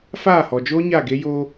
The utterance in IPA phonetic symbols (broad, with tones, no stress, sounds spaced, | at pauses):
f aː˦˨ h ɔ˨ d͡ʒ oː˦ ɲ a˦˨ ɡ e˦ j o˦